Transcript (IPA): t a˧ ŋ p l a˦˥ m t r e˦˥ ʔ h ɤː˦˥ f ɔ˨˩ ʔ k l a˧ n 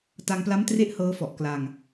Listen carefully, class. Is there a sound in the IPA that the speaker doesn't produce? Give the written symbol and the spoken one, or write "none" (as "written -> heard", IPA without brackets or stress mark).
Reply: n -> ŋ